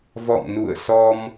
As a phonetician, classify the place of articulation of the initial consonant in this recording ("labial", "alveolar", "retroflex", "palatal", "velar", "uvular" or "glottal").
labial